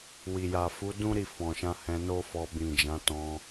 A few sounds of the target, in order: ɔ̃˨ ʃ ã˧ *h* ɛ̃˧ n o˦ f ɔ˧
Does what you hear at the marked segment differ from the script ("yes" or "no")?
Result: no